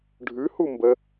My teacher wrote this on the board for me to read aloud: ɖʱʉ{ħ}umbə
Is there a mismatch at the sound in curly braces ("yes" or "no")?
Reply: yes